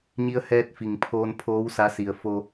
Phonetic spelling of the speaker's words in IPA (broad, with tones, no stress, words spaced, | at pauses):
ɲi˧ə̯hɛː˧t̚ fi˩ŋpʰoː˧n pʰoː˧˥w sa˧˥ si˩ə̯fo˧